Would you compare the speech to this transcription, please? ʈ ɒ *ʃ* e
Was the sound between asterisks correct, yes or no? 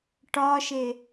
yes